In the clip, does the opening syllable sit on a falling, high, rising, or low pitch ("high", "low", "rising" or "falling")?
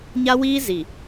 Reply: high